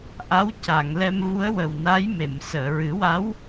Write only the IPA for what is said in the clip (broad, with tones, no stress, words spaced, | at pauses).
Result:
ʔa˧˥w ca˨˩˨ŋlɛ˧m vu˧˥ə̯wə˨˩wna˧˥j me˨˩˨m səː˨˩˨ɹɨ˨˩˦wa˧˥w